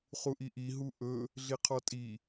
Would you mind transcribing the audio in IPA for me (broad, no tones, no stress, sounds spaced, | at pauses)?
χ u ʔ i ʔ i ɦ u ʔ ɵ | ɮ i qʰ ɔ tʼ i